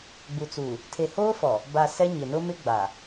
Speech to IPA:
ɡ͡b u˨ t͡s uː˨ | tʰ e˨ h oː˦ f ɔ˨ | b a˨ s ɛ˦ ɲ ɪ˨ n ʊ˦ m ɪ˦ ɡ͡b a˨

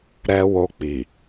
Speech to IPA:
ɾ ɛ˧ w o˧ k͡p i˨

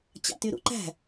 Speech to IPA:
t͡ɕ ɑ̰ t y ɾ ṵ ǃ æ̤

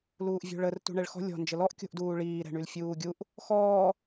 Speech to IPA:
l uː ʔ vʲ o̤ ɭ ə r t ṳ ɳ ɛ ɭ x ɔ̤ lʲ ɔ̤ n d͡ʒ ə l ɔ ʔ kʲ o̤ ʔ d uː ɭ iː ɾ ɛ̤ ɳ y l fʲ uː ɡʲ u ʔ | x ɔː

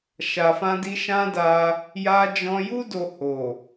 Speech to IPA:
ʃ a˨ f ã˧ d i˧ ʃ ã˦ d a˧ | j a˧ d͡ʒ ɔ̃˧ j u˦ d o˧ h o˨

